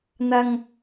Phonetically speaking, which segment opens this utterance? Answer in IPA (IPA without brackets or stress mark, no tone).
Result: n̪